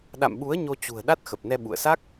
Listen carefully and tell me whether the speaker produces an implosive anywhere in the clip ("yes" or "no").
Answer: yes